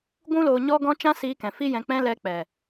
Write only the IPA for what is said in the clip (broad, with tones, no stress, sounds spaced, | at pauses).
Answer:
ɡʷ ũ˦ l oː˧ ɲ ɔ˦ ɡ ɔ̃˦ t͡ʃ ã˦ s iː˧ k ɛ̃˨ f i˦ j ɛ̃˧ k͡p ɛ̃˦ l ɛ˧ k͡p ɛ˨